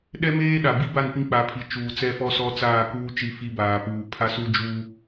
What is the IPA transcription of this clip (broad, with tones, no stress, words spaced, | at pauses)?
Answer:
ɗɛ˦meː˦ɗa˨ bi˦ba˦˨n pĩ˦k͡pa˨˦pʰi˨ t͡ʃuː˨t͡sɛ˦fɔ˦sɔ˦ t͡saː˦˨kuː˦ t͡ʃi˦˨fi˦baː˨puː˨ pʰa˦su˦d͡ʒu˦